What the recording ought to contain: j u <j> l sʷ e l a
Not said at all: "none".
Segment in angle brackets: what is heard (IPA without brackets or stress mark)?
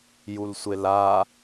none